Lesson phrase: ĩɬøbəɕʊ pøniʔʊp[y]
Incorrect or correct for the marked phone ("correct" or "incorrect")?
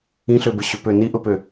incorrect